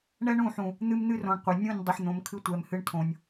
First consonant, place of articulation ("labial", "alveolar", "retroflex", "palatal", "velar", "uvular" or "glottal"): retroflex